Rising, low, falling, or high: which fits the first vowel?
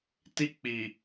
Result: high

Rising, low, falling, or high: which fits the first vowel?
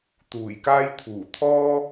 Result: low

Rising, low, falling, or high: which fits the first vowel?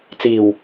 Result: low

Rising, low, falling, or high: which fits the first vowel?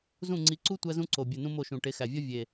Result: falling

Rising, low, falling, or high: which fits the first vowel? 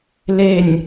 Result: falling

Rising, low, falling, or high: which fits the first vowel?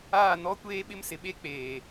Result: falling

